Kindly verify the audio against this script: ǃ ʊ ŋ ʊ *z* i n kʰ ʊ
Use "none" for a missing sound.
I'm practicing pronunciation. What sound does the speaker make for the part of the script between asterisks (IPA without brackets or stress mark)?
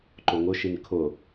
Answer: ʃ